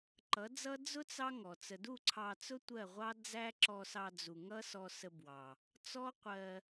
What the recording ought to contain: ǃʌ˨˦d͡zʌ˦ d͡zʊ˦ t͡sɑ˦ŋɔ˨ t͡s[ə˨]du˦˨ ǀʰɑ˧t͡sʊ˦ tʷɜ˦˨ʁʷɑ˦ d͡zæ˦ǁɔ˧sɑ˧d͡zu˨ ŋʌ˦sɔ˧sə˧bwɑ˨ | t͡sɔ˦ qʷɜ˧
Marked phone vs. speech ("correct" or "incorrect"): correct